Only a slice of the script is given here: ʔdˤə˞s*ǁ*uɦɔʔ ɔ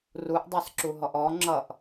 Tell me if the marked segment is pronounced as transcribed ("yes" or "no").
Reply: yes